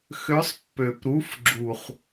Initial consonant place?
velar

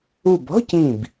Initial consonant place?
labial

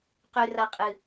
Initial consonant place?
uvular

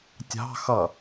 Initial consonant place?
alveolar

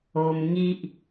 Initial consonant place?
labial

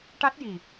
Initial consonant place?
retroflex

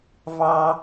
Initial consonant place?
labial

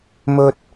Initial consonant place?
labial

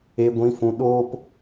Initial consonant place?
velar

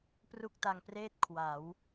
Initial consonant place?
labial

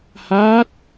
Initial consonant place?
glottal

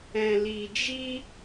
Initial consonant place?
alveolar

